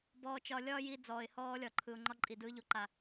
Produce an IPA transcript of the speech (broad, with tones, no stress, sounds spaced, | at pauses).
b ɔː˧ t͡ʃ ɒ˧ lʲ ɒː˦ j i˧ d͡z ɔː˨ ɪ̯ h ɔː˧ lʲ ɒ˨ ǃʰ ɯ˨ ʊ̯ ŋ͡ǃ ɒ˧ ǃʼ i˨ d ɯː˧ ʎ o˧ ǃ a˨